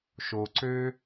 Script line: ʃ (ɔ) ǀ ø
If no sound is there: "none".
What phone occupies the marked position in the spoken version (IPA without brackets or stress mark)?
o